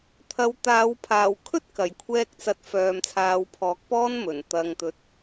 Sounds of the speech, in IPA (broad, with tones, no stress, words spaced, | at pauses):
t̪ʰɐ˨˧wt̪aː˨˧w pʰaː˨˩wkʰɵ˥t̚ kɐ˨˩j kʷʰɛː˧k̚ t͡sɐ˧t̚ fœː˨mt͡sʰaː˨˧wpʰɔː˨˥k̚ pɔː˥nmɵ˨˩n t̪ɐ˨ŋt̪ɵ˨t̚